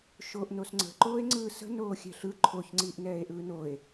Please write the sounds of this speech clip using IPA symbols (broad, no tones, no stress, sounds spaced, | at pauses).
ʃ oː ʔ n o s ŋ͡ǀ ə̤ ǃ oː e̯ ŋ͡ǀ ɯː s ə̤ n oː xʲ ɛ̤ ɬ ɯ ǃʰ o ç ŋ͡ǀ iː ʔ n ɛː e̯ ʔ ɯː n o e̯